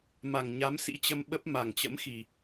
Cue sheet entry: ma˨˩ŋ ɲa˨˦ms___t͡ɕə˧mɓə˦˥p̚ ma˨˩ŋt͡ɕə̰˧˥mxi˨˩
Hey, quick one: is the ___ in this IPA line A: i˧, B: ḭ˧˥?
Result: B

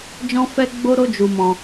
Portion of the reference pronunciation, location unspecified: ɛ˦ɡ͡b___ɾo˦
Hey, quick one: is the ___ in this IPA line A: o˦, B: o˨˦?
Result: A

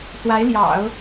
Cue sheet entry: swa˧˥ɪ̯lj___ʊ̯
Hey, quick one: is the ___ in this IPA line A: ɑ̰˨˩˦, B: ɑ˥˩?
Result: A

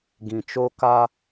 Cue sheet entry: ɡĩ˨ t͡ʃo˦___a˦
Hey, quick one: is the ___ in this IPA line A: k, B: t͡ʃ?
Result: A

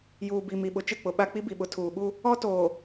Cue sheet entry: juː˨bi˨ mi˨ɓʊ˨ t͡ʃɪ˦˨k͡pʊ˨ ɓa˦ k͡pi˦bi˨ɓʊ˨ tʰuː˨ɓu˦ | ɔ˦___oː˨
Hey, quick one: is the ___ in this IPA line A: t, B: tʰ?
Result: A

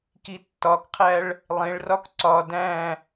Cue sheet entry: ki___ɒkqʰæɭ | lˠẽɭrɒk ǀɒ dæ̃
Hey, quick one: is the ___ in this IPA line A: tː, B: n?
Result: A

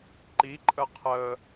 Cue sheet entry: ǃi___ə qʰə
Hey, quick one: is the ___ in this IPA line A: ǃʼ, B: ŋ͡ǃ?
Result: A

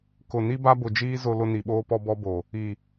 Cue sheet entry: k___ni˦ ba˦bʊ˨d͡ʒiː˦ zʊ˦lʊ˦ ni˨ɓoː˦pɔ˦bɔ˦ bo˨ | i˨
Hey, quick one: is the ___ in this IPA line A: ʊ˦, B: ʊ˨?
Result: B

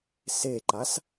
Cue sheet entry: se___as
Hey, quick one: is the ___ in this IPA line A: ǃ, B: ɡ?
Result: A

